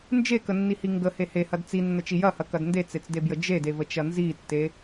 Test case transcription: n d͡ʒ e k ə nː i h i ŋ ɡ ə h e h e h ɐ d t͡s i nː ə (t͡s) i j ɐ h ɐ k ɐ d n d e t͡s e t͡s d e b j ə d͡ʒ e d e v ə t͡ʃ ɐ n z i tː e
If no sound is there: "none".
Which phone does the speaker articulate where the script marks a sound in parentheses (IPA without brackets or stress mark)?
t͡ʃ